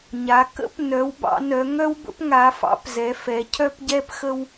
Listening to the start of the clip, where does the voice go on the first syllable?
rising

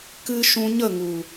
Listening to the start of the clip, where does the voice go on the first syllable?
high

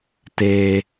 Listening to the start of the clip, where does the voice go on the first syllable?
high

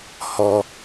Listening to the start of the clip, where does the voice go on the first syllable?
high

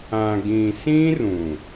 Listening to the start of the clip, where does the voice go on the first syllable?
low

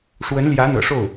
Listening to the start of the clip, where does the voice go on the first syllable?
rising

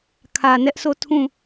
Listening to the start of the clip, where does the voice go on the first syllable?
low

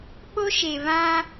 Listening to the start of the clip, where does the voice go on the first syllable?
high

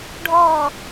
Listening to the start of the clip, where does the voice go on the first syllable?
low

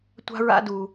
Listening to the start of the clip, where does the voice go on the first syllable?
high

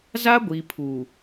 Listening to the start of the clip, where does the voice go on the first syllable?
high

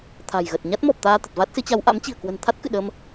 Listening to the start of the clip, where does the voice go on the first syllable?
low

